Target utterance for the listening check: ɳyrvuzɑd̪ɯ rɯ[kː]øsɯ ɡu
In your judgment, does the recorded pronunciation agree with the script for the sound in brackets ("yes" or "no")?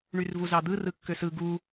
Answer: yes